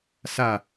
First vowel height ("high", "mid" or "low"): low